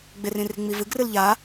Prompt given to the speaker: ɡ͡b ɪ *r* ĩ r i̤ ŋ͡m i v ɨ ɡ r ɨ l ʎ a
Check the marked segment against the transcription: correct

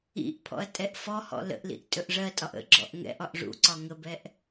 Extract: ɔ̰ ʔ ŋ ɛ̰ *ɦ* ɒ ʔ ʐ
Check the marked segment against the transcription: incorrect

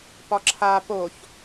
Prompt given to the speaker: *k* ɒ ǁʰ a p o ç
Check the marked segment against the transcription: incorrect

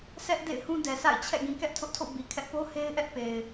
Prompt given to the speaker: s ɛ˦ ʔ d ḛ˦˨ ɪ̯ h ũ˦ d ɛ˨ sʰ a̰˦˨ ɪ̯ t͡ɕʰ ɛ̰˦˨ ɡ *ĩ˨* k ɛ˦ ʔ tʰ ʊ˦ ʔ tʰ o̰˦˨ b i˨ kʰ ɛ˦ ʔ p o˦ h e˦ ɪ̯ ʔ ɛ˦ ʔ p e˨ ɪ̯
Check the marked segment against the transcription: correct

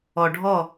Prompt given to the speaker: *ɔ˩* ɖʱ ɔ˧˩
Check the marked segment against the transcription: correct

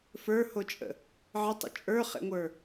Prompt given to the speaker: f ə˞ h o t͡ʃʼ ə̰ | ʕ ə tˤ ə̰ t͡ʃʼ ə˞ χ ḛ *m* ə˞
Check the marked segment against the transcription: incorrect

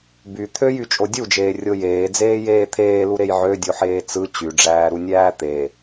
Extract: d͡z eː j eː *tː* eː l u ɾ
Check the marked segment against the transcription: incorrect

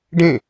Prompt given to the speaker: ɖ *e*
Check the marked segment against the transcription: incorrect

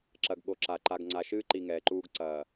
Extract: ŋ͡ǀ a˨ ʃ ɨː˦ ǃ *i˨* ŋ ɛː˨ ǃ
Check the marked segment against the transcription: correct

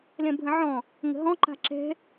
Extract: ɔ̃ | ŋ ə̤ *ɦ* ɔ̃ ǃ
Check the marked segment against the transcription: correct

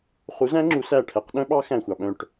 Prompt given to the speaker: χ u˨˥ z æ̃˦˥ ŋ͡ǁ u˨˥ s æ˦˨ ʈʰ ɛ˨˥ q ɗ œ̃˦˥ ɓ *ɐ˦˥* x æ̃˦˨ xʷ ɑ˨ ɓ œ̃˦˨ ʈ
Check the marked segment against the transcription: incorrect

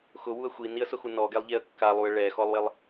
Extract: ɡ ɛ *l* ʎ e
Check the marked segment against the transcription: incorrect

